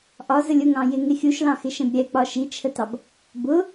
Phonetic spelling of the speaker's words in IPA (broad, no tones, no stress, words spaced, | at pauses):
ʔɒzəlʲ ʊŋɑ̃ jɪŋɪ xʲuʃlɑ̃xɪʃɛ̃b ɾʲɛk͡pɒ ʃit͡ʃʰətɑb | bʊ